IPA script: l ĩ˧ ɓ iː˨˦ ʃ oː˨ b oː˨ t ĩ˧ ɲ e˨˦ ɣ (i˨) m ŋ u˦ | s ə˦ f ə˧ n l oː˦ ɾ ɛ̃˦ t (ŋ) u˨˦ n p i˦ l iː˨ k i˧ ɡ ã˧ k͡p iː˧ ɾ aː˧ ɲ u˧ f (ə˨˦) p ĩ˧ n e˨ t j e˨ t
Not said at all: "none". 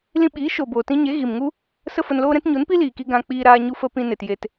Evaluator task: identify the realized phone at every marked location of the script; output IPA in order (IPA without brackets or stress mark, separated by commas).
i˨, ɲ, ə˧